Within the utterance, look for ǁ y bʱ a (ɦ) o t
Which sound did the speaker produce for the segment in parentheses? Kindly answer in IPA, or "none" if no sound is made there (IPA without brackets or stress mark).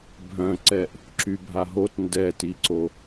ɦ